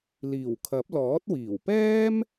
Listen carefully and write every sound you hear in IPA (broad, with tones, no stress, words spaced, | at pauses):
liː˨˩wkʰɐ˨˥p̚ lɔː˨˥t̚wiː˨˩w pɛː˥m